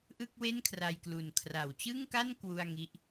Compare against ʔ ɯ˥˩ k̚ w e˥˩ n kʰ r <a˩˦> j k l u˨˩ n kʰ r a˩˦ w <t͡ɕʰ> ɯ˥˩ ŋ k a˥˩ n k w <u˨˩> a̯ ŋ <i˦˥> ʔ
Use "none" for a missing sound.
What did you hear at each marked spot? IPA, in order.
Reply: a˧, t͡ɕ, u˥˩, i˥˩

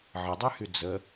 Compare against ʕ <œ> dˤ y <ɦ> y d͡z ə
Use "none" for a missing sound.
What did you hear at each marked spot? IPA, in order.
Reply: ə, h

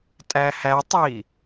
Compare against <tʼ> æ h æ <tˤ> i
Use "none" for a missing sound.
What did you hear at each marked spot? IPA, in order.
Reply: tʼ, tˤ

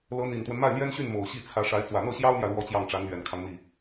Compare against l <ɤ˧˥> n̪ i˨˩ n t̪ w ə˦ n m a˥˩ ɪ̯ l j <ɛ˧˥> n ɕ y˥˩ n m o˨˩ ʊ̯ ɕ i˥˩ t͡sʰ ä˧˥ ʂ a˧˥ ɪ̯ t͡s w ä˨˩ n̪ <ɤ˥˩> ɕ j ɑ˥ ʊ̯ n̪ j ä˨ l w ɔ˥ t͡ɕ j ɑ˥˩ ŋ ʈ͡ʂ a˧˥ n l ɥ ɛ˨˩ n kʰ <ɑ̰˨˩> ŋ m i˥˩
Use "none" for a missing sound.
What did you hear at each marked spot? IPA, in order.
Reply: ɤ˧˥, ɛ˥, ɤ˥˩, ɑ˦

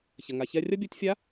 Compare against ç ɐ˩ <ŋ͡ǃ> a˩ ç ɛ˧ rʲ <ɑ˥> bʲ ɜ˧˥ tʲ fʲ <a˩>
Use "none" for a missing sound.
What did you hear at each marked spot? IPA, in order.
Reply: ŋ, ɐ˥, a˧˥

